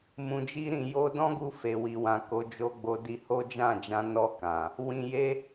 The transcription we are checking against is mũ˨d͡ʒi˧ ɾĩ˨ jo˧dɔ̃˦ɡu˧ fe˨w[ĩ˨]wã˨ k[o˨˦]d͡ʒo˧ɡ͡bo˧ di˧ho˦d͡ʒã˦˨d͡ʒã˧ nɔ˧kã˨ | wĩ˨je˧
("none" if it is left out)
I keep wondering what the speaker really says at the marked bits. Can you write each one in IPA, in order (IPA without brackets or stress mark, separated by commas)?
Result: i˨, o˨˦